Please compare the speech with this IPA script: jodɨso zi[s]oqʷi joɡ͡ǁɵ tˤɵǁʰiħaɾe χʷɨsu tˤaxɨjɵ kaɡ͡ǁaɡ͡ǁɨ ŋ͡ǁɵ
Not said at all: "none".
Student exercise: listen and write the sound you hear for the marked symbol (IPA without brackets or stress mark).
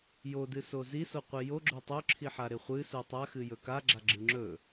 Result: s